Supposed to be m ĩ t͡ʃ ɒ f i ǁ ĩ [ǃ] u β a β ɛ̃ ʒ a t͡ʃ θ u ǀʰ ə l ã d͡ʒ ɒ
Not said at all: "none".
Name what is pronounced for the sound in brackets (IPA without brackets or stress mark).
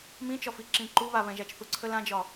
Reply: ǃ